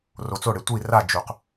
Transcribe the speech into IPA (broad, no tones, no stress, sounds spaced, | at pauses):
r o t͡s o ɽ e tʷ i r a d͡ʒ u q